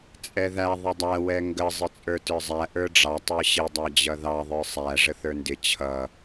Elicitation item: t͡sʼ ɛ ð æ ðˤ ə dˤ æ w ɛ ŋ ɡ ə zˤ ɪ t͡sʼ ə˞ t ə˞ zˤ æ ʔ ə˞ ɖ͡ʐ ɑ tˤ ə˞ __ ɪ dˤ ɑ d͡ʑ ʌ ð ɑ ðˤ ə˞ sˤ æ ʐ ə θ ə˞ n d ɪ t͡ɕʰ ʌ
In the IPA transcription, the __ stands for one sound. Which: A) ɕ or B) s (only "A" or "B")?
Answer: A